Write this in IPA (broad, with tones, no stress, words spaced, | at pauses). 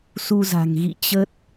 su˧ za̤˨˩ŋɣḭ˧˨ t͡ɕə˦˥t̚